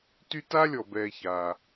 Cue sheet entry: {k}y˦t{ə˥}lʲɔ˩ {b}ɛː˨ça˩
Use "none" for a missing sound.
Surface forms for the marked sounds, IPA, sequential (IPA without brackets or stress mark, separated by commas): t, a˥, b